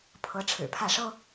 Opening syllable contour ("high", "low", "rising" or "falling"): rising